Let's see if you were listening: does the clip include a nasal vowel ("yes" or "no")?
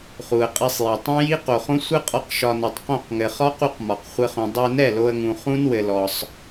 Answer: yes